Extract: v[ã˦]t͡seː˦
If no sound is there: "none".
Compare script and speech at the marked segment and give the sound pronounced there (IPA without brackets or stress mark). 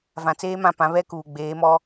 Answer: ã˨